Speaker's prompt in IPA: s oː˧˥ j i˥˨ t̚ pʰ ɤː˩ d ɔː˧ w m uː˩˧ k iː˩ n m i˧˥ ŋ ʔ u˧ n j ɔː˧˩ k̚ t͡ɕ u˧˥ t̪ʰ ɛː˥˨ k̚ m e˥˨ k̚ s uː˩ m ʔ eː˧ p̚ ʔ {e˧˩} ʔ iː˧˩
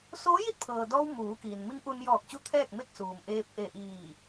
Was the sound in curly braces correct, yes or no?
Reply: yes